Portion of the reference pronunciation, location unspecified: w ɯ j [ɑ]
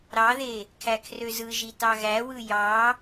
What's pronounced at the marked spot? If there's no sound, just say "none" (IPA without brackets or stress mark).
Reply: ɑ